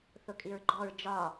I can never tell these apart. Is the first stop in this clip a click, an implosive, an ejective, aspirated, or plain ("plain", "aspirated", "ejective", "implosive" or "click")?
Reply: ejective